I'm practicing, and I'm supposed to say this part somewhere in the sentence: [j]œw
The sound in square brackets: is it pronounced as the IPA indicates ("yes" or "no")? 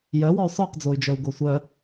yes